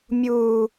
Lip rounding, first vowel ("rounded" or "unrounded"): rounded